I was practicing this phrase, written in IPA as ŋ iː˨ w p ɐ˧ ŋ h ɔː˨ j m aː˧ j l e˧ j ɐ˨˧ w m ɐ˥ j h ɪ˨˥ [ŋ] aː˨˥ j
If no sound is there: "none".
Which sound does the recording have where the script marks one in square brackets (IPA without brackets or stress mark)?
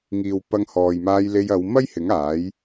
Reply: ŋ